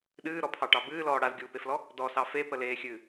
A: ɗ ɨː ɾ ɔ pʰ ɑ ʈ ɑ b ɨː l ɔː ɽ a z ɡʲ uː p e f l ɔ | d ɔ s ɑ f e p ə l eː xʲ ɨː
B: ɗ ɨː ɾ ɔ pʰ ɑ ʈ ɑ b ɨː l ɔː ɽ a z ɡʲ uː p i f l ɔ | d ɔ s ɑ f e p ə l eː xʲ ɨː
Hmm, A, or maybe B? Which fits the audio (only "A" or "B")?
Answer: A